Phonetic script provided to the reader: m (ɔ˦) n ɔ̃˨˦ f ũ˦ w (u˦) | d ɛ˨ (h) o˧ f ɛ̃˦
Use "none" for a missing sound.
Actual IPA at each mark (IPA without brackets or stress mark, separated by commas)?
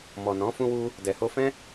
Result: ɔ˨, u˦, h